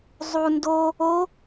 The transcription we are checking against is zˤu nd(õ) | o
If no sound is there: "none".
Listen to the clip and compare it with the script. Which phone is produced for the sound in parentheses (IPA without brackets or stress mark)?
o